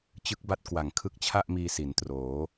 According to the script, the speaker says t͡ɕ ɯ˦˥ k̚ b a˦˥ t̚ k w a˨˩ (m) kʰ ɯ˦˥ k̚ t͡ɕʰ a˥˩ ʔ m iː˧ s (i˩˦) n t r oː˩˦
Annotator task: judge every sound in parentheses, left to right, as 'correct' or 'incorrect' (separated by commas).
incorrect, correct